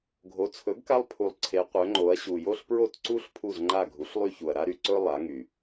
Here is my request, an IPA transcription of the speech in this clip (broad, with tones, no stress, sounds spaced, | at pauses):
ɡʱ o˩˥ t͡sʰ ɵ˩˥ ɡ k a˦ lˠ pʰ u˩ lˠ ǀʰ e˩˧ qʷ œ˩˧ ŋ͡ǃ o˩˧ ɐ̯ ɕ u˩ j o˦ ɬ p ɹ o˦˨ t ǀ u˦ ɬ pʰ u˦˨ z ŋ͡ǃ a˦˨ ɡʱ u˩˥ ɬ lˠ y˦ ç u˩ ɐ̯ ɾ a˦ ɾ y˩ ǀ ɵ˦ lˠ a˩˧ ŋ y˩